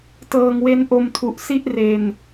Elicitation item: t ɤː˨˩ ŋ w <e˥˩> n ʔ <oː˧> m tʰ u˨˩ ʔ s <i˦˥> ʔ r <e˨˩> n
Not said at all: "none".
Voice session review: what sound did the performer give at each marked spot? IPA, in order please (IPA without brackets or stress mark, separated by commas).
e˧, o˧, i˥˩, e˨˩